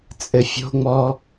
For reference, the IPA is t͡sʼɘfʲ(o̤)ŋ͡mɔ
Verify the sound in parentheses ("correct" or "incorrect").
correct